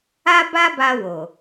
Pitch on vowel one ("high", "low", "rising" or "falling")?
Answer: high